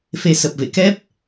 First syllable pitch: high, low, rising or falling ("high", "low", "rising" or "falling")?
rising